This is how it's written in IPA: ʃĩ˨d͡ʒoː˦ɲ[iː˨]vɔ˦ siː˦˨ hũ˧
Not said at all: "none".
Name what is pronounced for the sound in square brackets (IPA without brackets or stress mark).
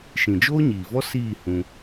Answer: iː˨